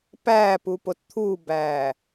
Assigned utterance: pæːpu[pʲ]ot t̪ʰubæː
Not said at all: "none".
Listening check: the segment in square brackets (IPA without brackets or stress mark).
p